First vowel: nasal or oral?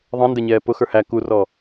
nasal